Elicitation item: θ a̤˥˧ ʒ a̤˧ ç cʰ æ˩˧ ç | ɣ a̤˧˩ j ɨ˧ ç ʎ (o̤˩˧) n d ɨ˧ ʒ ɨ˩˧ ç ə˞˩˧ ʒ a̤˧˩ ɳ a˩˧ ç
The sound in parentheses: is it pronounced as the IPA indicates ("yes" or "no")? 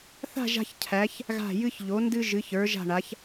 no